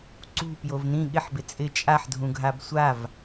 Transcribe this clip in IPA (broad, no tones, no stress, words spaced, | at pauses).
ǀṳpjov nĩ ɠɪħbɪ t͡sʼɪ t͡ʃʼaħdʱũɡʱab sʷav